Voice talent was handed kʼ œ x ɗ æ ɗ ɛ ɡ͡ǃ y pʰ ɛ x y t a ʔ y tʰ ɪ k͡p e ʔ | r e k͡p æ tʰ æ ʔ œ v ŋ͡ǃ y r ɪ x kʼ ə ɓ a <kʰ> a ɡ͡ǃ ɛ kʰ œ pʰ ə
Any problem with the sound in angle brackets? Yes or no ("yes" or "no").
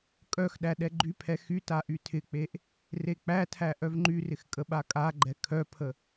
yes